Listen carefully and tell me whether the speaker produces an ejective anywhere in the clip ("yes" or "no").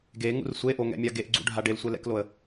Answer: no